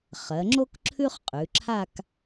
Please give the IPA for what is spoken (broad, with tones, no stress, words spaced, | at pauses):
χɜ˩˧ŋ͡ǁo˥k ǁʰʉ˥χqʼʉ˩˧ǁʰa˥˧k